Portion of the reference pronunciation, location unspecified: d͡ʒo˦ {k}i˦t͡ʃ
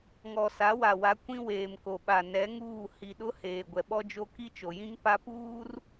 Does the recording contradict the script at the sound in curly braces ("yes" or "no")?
no